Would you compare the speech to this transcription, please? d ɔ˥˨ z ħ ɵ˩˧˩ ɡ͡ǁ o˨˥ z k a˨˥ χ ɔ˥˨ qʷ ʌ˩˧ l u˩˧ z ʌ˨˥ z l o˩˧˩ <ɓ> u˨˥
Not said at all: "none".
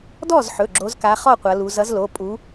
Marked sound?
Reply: pʼ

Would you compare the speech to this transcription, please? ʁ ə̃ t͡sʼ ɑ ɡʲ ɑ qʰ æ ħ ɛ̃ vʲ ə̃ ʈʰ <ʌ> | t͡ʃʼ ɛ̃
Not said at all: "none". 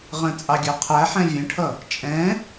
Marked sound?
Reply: ʌ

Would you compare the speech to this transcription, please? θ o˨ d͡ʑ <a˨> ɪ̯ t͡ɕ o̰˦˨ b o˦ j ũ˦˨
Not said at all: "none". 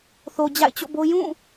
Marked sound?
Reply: a̰˦˨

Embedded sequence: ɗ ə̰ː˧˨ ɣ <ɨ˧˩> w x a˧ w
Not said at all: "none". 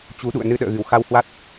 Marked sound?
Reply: ɨ˧˩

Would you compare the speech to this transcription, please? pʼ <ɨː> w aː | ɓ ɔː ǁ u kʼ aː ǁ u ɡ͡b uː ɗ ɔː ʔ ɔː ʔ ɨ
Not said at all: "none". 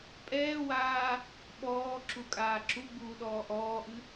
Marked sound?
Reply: ɛː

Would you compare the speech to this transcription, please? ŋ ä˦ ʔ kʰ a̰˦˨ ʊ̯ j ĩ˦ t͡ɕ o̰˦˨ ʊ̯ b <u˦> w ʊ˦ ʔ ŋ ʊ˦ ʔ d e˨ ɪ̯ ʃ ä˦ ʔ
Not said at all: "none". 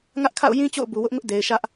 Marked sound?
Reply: u˨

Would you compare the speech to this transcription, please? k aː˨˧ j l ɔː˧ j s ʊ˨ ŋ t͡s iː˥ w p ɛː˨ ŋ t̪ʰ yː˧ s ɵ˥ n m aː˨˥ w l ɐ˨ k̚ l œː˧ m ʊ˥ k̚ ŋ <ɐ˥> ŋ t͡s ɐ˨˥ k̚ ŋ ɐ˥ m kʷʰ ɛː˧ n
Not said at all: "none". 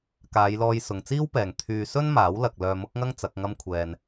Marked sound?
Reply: ɐ˥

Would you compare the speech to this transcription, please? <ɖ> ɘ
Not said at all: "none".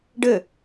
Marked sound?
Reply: ɖ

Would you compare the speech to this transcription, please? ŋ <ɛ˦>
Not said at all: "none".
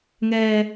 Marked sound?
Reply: ɛː˦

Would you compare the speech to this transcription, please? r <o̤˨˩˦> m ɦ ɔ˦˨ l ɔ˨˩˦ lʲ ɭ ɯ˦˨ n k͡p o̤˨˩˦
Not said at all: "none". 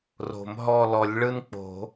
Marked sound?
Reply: o̤˨˩˦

